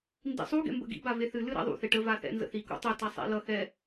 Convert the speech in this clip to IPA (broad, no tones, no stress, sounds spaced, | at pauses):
n d ḭ sˤ u ɡ ɛ̰ m b ə̰ ɡ ḭ b a v e θ ɨ l ɨ ɾ ɛ̰ ðˤ ṵ θ e ʈ ə v a θ ɛ̰ n z ə̰ θ i k ṵ tˤ ɛ t a sˤ ɛ̰ l ʌ x ɛ